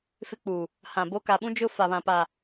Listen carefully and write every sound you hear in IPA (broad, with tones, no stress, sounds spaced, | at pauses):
f ɪ˦ k͡p u˨ | h ã˨ b o˦ k a˨ ɓ ũ˦ d͡ʒ ʊ˦ f a˨ β ã˨ p a˨